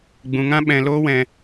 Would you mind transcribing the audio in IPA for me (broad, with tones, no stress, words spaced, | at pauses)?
ɡ͡bũ˧ŋã˦ ɓɛ̃˧ loː˦wɛ̃˧